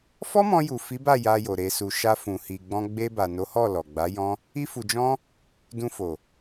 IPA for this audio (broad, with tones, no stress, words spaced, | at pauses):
fɔ˦mɔ̃˧ju˨ fi˨˦ba˦˨ ja˧jo˨ ɾe˨su˨ ʃa˧fũ˨hi˨ɡ͡bɔ̃˧ ɡ͡be˧ba˨ no˨˦hɔ˦˨ lɔ˨ɡ͡ba˨˦jɔ̃˦ | i˦fu˧d͡ʒɔ̃˦ | dũ˧fo˨